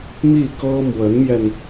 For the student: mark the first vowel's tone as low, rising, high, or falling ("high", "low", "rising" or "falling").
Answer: falling